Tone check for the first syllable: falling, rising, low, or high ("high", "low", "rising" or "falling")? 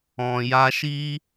low